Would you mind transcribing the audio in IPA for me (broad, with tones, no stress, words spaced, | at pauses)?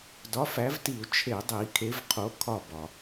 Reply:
dɒ˨˥fæ˨˥vti˧˩˧u̯ t͡ʃʰe˧˩˧dˤi˧˩˧ kʰe˨˥vqʰo˨˥ kʰɒ˦˨bɒ˩